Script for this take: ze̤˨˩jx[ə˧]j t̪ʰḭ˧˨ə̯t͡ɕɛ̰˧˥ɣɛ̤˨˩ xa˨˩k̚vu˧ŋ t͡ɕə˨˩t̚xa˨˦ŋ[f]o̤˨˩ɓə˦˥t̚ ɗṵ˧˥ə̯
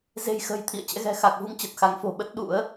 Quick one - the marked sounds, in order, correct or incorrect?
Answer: incorrect, correct

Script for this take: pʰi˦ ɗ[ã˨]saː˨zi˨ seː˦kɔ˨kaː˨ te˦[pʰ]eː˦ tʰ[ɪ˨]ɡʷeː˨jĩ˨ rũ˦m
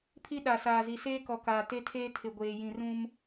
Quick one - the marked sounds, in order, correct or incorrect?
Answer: incorrect, incorrect, correct

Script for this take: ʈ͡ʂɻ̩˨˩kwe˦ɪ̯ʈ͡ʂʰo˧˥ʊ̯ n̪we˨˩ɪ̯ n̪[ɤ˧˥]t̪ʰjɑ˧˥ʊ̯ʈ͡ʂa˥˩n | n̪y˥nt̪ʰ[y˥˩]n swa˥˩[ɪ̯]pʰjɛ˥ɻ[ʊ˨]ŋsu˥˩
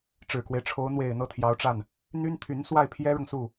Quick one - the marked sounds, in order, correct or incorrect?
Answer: incorrect, incorrect, correct, correct

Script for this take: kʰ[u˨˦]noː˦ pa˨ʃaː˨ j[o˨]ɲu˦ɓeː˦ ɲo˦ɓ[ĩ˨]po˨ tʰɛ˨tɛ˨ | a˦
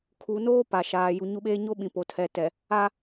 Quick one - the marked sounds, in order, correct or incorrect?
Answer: incorrect, incorrect, correct

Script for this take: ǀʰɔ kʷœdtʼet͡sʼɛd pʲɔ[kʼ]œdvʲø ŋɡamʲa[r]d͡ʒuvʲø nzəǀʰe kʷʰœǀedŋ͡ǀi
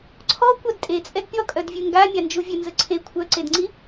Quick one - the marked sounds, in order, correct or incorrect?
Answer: correct, incorrect

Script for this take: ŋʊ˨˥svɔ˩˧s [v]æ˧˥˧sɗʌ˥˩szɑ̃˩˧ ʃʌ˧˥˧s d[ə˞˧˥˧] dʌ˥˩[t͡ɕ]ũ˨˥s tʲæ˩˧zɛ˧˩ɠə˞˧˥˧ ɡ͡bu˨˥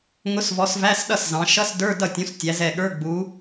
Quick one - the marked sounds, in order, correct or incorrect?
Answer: correct, correct, incorrect

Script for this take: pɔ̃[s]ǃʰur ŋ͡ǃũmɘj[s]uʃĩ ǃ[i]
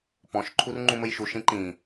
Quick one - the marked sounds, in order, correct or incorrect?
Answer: incorrect, incorrect, incorrect

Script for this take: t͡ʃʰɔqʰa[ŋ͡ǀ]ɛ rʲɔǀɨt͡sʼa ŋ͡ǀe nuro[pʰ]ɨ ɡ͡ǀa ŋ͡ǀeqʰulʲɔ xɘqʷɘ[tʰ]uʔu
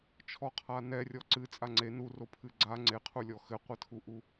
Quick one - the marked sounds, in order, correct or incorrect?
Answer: incorrect, correct, correct

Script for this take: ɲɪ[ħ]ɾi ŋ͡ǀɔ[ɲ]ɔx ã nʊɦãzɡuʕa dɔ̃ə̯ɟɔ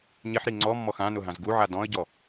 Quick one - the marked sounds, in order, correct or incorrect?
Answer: correct, incorrect

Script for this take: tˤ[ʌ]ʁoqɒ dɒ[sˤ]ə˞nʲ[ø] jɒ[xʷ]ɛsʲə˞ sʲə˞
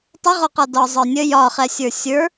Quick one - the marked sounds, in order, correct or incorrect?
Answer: incorrect, incorrect, incorrect, incorrect

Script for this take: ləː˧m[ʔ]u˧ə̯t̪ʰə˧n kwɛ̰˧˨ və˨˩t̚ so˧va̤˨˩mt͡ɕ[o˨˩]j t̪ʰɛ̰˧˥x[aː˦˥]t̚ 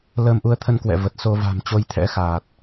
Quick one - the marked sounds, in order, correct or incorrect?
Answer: correct, incorrect, incorrect

